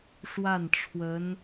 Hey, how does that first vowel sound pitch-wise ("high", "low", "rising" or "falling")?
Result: falling